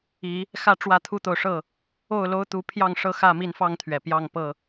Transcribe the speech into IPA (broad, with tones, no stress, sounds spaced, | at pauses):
i˨˦ | x ä˦ ʈ͡ʂ w ä˥˨ t̪ʰ u˦ t̪ o˨ ʊ̯ ʂ ɤ˥˨ | o˥˨ ʊ̯ l o˦ ʊ̯ t̪ u˨˦ pʰ j ɑ˥˨ ŋ ʂ ɤ˥˨ x ä˥˨ m i˥˨ n f ɑ˥˨ ŋ t̪ʰ ɥ ɛ˩ p j ɑ˥˨ ŋ p ɤ˥˨